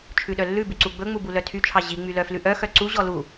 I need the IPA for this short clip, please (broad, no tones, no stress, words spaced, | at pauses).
t͡ʃʰʉɗœlːʉbʉ ǀuɡ͡bɵŋ͡mu bulœtʰyt͡ʃʰɑ ʑiŋ͡my lœflʉʔœxœ ǀuʑɔ lu